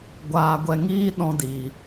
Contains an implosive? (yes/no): yes